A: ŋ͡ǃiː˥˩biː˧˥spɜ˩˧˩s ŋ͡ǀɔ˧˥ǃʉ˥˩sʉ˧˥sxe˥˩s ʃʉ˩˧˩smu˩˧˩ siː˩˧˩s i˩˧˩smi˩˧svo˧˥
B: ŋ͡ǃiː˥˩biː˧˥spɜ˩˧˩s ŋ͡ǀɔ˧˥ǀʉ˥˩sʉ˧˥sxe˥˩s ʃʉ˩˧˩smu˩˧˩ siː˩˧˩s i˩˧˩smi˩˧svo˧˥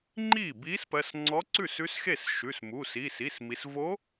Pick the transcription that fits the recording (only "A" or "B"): B